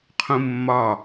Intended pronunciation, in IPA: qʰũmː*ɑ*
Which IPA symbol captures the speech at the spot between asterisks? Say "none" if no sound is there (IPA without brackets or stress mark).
ɒ